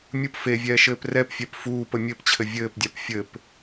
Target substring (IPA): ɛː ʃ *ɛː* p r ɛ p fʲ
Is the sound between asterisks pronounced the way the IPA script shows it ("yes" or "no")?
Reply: no